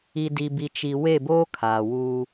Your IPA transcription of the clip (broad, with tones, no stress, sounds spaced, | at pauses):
i˨ d i˨ b i˨ t͡ʃ i˨ w e˦˨ b oː˦ kʰ aː˨ w uː˦